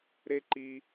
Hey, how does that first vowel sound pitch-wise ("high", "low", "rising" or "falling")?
high